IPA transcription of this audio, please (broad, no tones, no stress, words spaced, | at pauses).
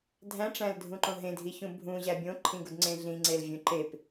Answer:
dʱæ̃ʈ͡ʂæ̃ldʱũǃõ ɦẽdʱiçũ bʱũʑæ bʲõǃʰĩɡudŋ͡ǀẽ ɮĩŋ͡ǀelvʲũ ǃep